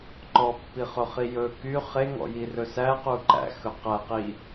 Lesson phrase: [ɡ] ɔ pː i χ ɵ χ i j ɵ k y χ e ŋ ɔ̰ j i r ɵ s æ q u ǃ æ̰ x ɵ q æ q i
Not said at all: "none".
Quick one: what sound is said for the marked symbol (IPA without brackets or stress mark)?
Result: ǃ